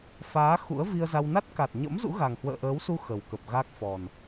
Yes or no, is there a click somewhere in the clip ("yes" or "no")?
no